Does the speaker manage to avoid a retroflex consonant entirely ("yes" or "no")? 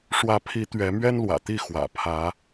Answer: no